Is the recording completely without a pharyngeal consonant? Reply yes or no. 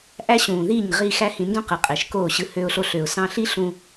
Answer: yes